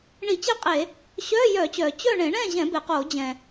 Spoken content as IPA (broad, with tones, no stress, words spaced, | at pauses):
ɳi˧˩˧t͡ɕɛ˥˨qʼe˧˩˧ | ɕœː˧˥˧jœː˧˩˧t͡ɕœː˩ t͡ɕœ˥˨ ɳẽ˧˩˧ɳɛ̃ː˥˨ʑɛ̃˧˩˧ be˩qoː˧˩˧d͡ʑɛ̃˩